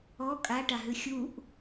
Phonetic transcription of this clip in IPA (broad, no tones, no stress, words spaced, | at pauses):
ɔ kʼaʈaɦʉ xʲuʔ